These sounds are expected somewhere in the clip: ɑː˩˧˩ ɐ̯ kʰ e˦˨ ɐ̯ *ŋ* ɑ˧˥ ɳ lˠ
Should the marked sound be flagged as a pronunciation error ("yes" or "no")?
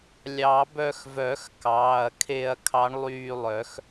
yes